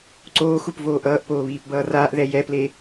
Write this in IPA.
ǀ oː x u p v oː ʔ ʌː ʔ p oː β iː p b ʌː r aː ʔ ð ɛ j ɛ p l e

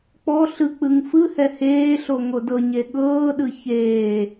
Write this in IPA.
k͡p ɔ ɬ ɯ k͡p ɯ ŋ f ɯ h ɛ h eː ɬ o ŋ o d ɤ ɲ e ɠ ɤː ɗ ɯ ç eː

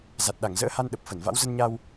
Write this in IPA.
z a˨˩ t̚ ɗ a˧˩ ŋ z ə̰ː˧˥ h a˧ n ɗ ə˨˩ p̚ f ə˧˩ n v a̰˧˥ w z ə˧ n ɲ a˧ w

